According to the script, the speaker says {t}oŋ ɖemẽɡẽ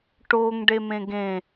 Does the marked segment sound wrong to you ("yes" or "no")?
yes